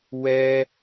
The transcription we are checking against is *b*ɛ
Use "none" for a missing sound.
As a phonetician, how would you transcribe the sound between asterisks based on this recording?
w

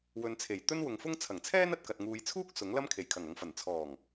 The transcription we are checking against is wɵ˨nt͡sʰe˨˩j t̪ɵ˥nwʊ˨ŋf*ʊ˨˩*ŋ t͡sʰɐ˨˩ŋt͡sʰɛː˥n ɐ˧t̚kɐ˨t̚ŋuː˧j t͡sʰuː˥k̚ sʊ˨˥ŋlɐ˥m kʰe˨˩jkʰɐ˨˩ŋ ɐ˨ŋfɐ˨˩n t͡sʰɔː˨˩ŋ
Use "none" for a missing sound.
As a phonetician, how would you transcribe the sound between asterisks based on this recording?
ʊ˥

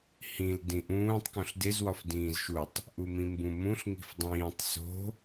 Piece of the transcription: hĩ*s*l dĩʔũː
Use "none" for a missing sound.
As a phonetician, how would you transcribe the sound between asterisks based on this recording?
none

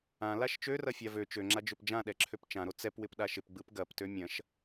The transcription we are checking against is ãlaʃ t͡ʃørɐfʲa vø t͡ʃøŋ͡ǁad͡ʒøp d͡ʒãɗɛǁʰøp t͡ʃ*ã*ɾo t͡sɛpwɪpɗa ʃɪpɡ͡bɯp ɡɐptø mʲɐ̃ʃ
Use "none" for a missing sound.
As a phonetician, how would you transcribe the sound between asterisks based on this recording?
ã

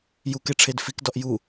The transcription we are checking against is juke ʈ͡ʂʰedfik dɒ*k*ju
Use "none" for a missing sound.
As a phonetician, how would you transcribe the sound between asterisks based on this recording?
ʔ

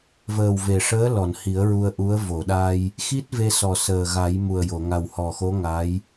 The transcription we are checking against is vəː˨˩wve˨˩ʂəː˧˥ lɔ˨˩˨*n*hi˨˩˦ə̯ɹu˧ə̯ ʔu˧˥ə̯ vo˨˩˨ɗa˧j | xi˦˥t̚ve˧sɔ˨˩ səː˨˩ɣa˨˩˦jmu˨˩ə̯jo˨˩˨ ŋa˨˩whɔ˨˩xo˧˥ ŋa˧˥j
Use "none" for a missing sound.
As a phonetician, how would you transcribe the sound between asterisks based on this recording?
n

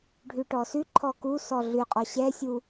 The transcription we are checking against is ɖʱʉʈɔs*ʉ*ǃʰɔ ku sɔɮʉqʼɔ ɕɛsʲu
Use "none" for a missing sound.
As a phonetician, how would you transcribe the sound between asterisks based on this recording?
ʉ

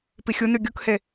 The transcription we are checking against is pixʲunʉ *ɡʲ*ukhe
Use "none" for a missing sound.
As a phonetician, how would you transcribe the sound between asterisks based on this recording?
ɡʲ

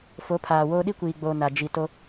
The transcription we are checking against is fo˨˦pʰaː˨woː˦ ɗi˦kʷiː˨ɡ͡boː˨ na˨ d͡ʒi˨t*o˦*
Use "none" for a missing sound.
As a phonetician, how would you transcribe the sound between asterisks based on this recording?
o˦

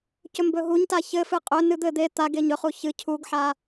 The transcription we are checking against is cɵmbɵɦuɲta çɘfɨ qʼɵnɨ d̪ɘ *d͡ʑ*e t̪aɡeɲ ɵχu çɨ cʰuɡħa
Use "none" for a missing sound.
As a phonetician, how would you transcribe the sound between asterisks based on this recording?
d̪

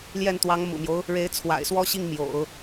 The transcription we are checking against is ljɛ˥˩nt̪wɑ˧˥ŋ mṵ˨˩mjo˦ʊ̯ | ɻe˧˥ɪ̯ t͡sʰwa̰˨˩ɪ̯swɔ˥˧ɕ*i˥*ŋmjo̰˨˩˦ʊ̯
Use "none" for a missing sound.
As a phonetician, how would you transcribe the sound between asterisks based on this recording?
i˥˩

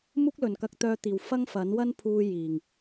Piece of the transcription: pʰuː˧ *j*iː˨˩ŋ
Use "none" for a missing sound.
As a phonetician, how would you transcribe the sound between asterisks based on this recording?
j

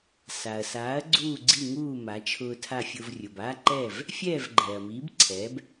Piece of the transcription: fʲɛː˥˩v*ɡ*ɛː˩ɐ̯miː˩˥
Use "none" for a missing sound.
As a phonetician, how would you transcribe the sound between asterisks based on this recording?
ɡ͡ǃ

